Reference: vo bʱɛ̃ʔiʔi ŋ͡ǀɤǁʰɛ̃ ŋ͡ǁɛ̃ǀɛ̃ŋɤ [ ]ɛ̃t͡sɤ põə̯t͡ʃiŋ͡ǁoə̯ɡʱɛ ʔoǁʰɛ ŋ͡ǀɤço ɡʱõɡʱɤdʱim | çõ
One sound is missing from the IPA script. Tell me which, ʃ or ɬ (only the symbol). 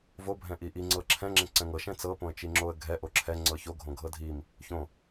ʃ